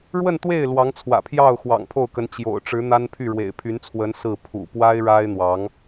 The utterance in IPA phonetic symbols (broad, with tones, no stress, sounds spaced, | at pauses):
ɻ w ə˥˧ n t̪ w e˥˩ ɪ̯ l w ɑ˧˥ ŋ t͡sʰ w ä̰˨˩ pʰ j ɑ˥˩ ʊ̯ x w ɑ̰˨˩ ŋ pʰ o˥˩ ʊ̯ k ə˧˥ n t͡ɕ j o̰˨˩ ʊ̯ ʈ͡ʂ ɻ̩˧˥ n̪ a˥ n pʰ y˥˩ ɻ w ḛ˨˩ ɪ̯ pʰ y˧˥ n t͡sʰ w ə˧˥ n s ɹ̩˥˩ pʰ ṵ˨˩ p w a˥ ɪ̯ ɻ a˥ ɪ̯ n̪ w ɑ˧˥ ŋ